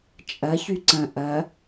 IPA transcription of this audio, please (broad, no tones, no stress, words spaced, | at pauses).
t͡ʃʼɐ çyǀɐ̃ ʔɐ